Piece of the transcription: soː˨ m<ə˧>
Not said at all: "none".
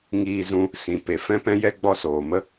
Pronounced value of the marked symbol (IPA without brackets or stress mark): ə˦